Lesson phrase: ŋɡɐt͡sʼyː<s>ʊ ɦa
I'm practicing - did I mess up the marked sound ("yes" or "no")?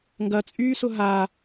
no